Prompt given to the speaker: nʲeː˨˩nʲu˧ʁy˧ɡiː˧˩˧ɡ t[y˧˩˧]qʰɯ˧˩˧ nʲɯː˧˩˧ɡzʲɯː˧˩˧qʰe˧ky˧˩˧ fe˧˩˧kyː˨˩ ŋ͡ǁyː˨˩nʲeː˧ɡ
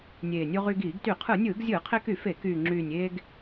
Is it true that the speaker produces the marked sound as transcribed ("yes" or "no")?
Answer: yes